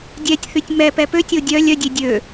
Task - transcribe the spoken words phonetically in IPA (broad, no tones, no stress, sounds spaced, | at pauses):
dʲ ɛ tʲ θ y tʲ m ɛ p ɛ p ø tʲ o dʲ œ lʲ œ dʲ e dʲ ø